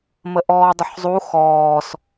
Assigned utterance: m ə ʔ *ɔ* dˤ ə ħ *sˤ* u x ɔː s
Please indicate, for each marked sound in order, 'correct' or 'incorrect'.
incorrect, incorrect

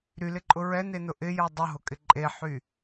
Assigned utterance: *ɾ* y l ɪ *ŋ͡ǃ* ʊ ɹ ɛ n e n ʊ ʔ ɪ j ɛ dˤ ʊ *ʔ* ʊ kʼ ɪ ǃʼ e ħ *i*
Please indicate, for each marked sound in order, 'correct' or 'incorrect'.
correct, incorrect, incorrect, incorrect

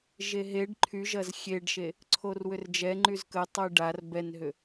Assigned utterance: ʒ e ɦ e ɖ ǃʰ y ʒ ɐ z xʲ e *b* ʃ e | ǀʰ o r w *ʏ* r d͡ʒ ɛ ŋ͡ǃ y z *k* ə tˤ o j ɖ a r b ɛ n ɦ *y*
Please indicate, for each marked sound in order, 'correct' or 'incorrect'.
incorrect, correct, correct, incorrect

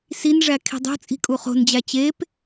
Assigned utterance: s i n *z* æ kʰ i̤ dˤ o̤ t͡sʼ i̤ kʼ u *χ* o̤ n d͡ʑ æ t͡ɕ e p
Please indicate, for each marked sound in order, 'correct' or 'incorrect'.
incorrect, correct

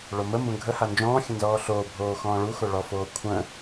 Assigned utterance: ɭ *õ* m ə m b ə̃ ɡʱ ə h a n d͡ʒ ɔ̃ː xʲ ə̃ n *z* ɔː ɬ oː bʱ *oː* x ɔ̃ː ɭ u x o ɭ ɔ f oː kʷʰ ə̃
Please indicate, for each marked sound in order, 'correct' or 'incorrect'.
incorrect, correct, correct

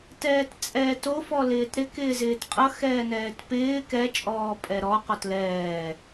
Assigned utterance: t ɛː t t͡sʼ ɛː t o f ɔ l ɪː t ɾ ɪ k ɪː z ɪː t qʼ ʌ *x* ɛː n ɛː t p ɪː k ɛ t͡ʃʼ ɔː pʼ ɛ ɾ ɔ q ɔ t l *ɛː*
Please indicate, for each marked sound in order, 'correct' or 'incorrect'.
correct, correct

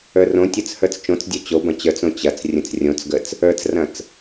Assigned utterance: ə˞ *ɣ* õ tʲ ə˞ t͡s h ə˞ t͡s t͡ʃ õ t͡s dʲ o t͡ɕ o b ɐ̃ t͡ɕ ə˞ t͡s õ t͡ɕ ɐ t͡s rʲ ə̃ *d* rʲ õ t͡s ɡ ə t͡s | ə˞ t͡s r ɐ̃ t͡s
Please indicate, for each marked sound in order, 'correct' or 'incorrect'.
incorrect, incorrect

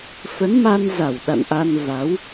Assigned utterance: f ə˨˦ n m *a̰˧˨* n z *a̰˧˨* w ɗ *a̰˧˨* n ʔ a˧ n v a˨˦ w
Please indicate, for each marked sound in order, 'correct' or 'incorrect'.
incorrect, incorrect, correct

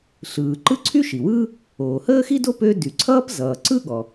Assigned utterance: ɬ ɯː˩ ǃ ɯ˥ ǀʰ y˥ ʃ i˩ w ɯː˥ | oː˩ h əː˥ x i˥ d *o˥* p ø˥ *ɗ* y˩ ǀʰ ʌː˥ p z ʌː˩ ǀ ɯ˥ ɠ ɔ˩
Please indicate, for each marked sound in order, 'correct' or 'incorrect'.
correct, incorrect

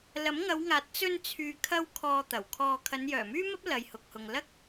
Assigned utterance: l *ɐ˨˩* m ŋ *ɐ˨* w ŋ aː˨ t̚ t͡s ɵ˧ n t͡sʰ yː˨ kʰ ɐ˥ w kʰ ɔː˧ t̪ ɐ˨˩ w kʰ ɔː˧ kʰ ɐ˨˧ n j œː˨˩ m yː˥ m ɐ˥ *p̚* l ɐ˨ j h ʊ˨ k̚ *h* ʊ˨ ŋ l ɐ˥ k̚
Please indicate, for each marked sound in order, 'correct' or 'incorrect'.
incorrect, incorrect, correct, correct

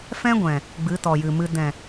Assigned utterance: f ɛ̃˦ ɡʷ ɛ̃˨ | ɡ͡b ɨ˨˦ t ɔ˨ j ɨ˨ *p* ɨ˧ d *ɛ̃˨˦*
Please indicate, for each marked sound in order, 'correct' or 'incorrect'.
incorrect, incorrect

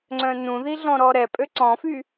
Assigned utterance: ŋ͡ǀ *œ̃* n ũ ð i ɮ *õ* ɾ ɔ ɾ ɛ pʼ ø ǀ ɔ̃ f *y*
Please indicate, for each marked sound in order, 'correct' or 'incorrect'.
correct, incorrect, correct

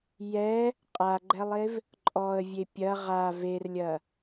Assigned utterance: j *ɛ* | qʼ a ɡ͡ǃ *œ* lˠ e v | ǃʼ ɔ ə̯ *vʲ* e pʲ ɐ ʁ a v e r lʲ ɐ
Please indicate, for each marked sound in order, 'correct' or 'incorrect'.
correct, incorrect, correct

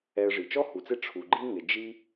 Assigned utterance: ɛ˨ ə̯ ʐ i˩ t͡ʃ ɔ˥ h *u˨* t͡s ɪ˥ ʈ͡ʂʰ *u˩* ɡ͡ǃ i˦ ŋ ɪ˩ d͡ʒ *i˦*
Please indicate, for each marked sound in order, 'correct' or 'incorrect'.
incorrect, correct, correct

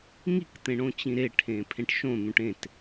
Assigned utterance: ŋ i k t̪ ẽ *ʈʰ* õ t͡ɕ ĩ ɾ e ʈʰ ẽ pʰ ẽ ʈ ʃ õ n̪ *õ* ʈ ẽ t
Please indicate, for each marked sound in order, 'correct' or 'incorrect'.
incorrect, incorrect

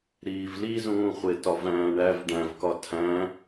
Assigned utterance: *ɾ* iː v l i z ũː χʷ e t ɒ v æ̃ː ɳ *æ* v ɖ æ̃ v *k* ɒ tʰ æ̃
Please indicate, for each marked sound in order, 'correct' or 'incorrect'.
correct, correct, correct

